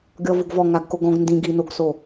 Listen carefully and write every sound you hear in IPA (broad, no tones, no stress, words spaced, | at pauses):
ɡʲɔvoɡvɔ ŋaɡkoɡɔ̃ɡ ndĩɡ inoɡso